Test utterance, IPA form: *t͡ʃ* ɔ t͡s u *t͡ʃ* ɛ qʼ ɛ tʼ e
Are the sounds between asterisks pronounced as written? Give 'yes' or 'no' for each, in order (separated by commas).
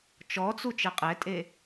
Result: yes, yes